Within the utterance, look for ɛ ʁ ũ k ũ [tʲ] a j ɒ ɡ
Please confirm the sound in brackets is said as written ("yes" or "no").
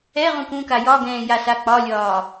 no